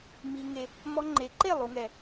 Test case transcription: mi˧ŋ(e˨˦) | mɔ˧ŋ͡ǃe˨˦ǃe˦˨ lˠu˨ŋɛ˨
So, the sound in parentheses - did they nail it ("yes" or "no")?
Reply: no